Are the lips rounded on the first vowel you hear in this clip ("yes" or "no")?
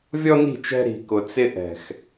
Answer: yes